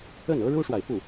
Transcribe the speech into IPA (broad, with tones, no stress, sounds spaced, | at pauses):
ə˥˩ n ɤ˥ ɻ u˥ ʂ w a˨ ɪ̯ f u˥˩